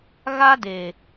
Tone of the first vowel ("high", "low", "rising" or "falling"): high